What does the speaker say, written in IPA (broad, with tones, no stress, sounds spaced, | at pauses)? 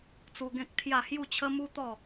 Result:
t͡s u˧ ɡ ẽ˦ k̚ t̪ʰ j a˥˧ h j u˥˧ t͡ɕʰ ə˦ m u˦ t̪ ɔ˥˧